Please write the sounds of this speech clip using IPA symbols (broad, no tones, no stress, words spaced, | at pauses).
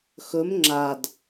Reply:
xɵm ŋ͡ǁad